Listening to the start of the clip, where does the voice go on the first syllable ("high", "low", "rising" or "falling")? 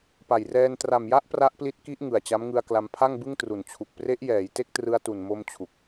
low